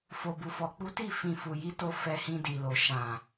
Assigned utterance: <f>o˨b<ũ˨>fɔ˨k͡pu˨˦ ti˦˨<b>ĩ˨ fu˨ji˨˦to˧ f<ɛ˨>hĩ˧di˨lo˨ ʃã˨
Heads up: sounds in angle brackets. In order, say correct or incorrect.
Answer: correct, incorrect: u˨, incorrect: f, incorrect: ɛ˧

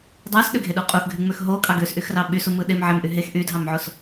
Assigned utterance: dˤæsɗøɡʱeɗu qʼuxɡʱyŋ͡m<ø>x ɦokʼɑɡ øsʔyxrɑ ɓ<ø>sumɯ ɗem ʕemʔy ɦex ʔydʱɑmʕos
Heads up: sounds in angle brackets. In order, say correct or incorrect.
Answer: correct, incorrect: y

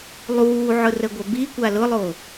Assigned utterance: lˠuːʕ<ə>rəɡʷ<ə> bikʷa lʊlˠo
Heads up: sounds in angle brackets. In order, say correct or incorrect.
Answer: incorrect: ʊ, incorrect: ɐ

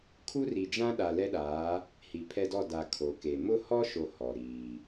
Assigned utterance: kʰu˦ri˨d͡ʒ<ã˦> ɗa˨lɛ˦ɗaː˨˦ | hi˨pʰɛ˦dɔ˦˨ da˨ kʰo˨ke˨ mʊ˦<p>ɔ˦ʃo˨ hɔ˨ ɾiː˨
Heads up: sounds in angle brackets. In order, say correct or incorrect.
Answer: correct, incorrect: h

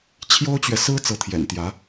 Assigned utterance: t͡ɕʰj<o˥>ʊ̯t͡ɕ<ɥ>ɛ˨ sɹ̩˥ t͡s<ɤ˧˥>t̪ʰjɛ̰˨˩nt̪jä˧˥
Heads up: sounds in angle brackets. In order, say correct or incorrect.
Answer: correct, correct, correct

